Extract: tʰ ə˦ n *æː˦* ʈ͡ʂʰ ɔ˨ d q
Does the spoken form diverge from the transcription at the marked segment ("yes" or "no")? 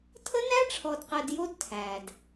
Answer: yes